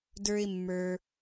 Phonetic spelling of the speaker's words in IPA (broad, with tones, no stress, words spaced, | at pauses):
də˞˦ɪ̯mːə˞˧